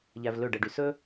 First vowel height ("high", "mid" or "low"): low